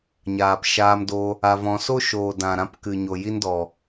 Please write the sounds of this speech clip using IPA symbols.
ɲ aː˨ p ʃ aː˧ m d o˧ | a˧ v ɔ̃˧ s o˦ ʃ oː˨ d ã˨ ɾ ã˧ p k ɨ˨ ɲ o˨ j i˧ n d ɔ˨

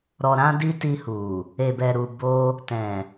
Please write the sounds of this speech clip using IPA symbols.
ɾ ɔ˧ ɾ ã˦ d i˦ t i˧ h u˨ | e˨ b ɛ˨ ɾ u˨ b o˧ | t ɛ̃˨

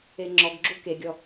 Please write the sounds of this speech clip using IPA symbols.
e ŋ͡ǁ ɔ ɡ ɡ͡ǁ u k e ɡʲ ɔ

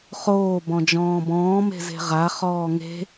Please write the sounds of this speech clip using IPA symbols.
χ oː b ɔ̃ d͡ʒ ɔ̃ː b ɔ̃ː m e̤ z e̤ ʁ a χ ɔː ŋ e̤

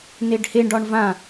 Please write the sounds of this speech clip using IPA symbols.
n e ɖ h e ɳ ɖ ɒ ɳ v ã

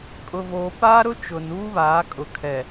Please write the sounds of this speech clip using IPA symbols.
kʼ ʊ˨ v oː˨ p aː˦ ɾ ʊ˦ t͡ʃ ʊ˨ n uː˦ β aː˨˦ kʼ ʊ˨ kʰ ɛ˨

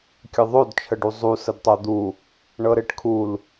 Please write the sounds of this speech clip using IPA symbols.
kʲ ɘ ðˤ o d t͡ʃʰ ə ɖ u zˤ u s ə d tˤ o d̪ u | ɳ ɤ ɾ e ʈ kʰ u l

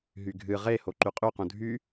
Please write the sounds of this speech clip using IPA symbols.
ɦ y ɡʱ ɨ ʁ e h o ǃ y qʼ y q ũ dʱ y

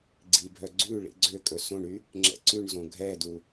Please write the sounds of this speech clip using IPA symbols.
ɡ͡ǀ i bʱ œ ɡ͡ǀ ʉ ɭ ḭ ɡ͡ǀ ø kʼ ɵ s õ ɳ y | ŋ͡ǁ ɛ̰ ǀ ʉ ɳ z õ ɡʱ ɛ d u

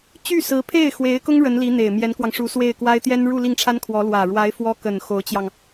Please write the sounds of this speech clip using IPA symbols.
t͡ɕ y˥˩ s ɹ̩˧˥ pʰ e˥˩ ɪ̯ x w e˧˥ ɪ̯ k ʊ˥ ŋ ɻ ə˧˥ n l i˧˥ n̪ e˨˩ ɪ̯ m j ɛ˧˥ n k w ɑ˧ ŋ ʂ u˧˥ s w e˥˩ ɪ̯ k w a˥ ɪ̯ t̪ j ɛ˥ n ɻ u˥˧ l i˥˩ ŋ ʈ͡ʂʰ a˥ n kʰ w ɔ˧˥ l w ä˨˩ ɻ w a˧˥ ɪ̯ f w ɔ˥ k ə˨˩ n x o˧˥ ʊ̯ t͡ɕ j ɑ˧ ŋ

